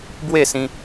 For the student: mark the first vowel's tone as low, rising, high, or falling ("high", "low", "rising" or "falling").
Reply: falling